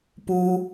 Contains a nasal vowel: no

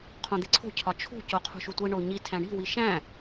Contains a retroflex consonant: yes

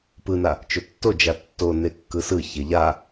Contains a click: no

